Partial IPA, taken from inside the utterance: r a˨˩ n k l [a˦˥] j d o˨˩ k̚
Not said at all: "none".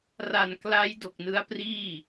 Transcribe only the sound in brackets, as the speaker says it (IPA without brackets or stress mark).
a˦˥